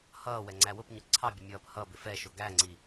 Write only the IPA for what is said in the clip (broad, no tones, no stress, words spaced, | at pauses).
hʌː wɛŋ͡ǀæwʊpɲʊ ǀʰɑbʲə mʲʌːphʌbɪ fɛʃʊ ɡæŋ͡ǀi